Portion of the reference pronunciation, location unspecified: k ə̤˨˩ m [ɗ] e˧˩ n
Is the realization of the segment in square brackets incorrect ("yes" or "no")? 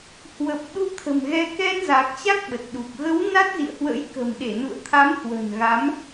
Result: no